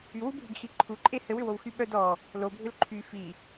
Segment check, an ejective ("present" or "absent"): present